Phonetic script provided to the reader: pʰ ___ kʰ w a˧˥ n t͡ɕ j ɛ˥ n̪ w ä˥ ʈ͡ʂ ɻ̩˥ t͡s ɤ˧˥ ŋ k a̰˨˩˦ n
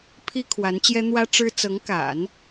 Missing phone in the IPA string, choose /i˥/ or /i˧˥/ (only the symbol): i˥